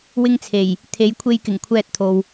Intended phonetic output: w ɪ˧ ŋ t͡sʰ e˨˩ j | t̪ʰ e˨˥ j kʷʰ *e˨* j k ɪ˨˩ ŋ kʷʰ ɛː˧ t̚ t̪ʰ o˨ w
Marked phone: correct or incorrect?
incorrect: e˧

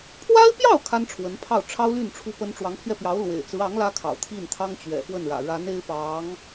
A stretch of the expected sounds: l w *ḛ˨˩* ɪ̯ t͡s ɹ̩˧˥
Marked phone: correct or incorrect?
correct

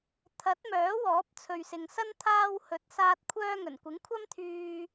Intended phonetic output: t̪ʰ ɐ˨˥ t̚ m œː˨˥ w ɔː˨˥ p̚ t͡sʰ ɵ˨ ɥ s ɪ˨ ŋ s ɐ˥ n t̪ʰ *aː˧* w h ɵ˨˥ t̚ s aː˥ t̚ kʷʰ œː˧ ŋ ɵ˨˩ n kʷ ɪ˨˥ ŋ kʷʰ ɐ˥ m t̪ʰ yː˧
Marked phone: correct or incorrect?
correct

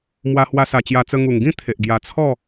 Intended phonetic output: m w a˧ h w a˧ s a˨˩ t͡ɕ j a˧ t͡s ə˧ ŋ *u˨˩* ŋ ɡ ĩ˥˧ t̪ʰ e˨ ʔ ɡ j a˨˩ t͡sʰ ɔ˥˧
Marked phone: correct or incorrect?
correct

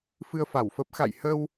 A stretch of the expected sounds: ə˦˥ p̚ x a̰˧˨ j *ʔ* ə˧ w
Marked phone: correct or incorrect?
incorrect: h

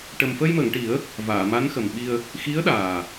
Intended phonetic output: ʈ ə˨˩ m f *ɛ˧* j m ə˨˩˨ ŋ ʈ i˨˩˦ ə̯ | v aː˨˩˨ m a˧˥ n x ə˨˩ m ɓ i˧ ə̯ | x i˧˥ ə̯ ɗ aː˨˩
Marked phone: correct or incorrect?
incorrect: ə˧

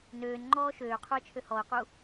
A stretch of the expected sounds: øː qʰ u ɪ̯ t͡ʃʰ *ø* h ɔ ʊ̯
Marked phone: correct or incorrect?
correct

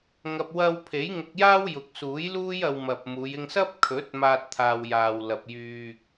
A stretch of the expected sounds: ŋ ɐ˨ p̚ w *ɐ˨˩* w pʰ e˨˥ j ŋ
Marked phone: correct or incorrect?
incorrect: ɐ˧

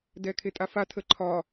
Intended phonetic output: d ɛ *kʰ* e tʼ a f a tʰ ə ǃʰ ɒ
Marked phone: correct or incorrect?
correct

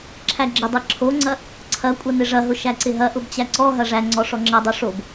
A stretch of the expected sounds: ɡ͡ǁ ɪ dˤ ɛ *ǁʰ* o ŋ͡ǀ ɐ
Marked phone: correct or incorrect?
correct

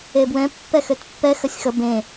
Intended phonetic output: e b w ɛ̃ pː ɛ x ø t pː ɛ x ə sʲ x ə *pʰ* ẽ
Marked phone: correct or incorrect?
incorrect: b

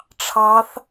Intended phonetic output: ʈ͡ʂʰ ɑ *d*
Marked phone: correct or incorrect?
incorrect: θ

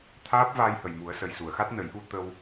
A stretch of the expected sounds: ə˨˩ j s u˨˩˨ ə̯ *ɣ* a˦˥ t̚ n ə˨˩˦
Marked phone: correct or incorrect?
incorrect: x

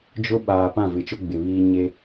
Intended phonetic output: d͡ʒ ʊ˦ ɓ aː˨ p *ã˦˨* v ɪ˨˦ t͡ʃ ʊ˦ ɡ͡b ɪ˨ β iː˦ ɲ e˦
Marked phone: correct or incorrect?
correct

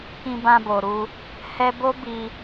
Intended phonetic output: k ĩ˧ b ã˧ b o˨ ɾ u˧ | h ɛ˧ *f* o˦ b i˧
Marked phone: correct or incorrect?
incorrect: b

